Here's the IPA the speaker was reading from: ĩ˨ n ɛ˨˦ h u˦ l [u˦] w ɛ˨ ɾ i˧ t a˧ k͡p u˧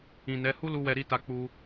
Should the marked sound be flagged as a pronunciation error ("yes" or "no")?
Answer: yes